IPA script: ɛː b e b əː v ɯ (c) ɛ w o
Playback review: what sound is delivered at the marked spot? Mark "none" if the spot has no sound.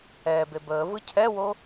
cʰ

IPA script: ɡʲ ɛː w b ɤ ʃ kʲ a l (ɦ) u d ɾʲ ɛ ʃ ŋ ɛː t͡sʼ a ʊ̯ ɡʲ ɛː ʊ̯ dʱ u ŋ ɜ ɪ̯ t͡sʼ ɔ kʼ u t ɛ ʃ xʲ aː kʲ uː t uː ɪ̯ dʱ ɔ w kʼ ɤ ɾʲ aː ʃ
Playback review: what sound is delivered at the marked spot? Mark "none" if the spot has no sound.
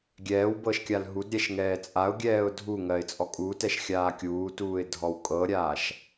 ɦ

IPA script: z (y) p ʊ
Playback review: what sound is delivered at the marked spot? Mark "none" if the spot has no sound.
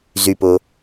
y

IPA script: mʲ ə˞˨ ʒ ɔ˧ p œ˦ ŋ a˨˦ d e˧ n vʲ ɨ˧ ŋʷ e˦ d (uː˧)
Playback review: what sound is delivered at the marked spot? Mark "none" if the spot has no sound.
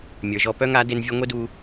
uː˧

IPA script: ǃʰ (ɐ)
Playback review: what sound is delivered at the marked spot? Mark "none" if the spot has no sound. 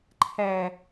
æ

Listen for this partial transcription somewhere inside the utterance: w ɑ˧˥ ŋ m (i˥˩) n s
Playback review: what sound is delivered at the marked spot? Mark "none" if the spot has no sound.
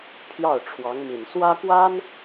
i˨˩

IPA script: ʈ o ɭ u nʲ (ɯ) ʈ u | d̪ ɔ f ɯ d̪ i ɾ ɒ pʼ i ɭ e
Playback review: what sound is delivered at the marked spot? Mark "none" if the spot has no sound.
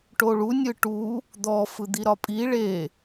ɯ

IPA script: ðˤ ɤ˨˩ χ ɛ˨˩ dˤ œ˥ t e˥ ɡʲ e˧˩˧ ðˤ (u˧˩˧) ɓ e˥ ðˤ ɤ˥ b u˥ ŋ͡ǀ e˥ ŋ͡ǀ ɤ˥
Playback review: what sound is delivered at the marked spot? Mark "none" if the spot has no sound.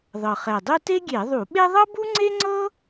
u˧˩˧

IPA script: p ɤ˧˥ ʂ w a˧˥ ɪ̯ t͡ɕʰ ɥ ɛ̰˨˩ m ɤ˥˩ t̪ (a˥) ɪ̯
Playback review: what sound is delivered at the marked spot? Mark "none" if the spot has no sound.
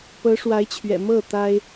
a˥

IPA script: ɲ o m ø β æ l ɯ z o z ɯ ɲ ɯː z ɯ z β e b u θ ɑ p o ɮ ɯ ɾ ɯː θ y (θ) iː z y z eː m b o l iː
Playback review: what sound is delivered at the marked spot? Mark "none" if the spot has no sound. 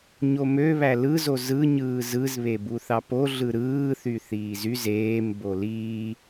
θ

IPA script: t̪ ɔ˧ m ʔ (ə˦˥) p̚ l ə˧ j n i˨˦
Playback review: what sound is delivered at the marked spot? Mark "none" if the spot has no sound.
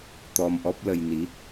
ɔ˦˥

